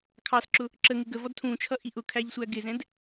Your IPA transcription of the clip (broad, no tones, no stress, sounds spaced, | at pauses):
kʰ ɑ s ǁ ʊ | ǁ ə ŋ ɪ ɡ ə v ɔ d tʰ ũ t͡ʃʰ ʌ ʔ i ʔ ʊ kʰ æ ʎ sʷ æ ɡ ɪ z ɛ̃ d